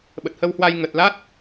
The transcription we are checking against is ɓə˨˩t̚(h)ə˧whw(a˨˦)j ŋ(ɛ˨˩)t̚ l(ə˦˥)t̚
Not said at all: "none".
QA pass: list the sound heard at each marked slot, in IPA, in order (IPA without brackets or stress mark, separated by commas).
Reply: h, a˧, ə˨˩, a˦˥